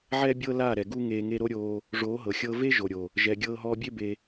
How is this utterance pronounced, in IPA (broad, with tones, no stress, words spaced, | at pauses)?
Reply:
ʕɛ˦bʲɤ˦laː˦˨ɾɛ˨ ɡu˦ŋeː˧ ŋe˧ɾo˦ɾʲoː˧ | ʐoː˨˦ɦɤ˨xʲɤː˧ve˦ ʒo˨ɾʲo˨ | ʒɛ˨ ɡʲɤː˧ɦɔː˧bʲe˦ be˧